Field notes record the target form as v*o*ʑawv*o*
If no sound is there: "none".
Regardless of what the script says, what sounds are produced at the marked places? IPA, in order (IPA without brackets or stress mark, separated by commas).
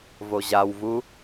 o, u